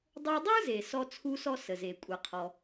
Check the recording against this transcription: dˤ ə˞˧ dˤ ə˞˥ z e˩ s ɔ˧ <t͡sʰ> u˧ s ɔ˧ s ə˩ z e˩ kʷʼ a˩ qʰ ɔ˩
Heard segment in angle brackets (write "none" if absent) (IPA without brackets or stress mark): t͡sʰ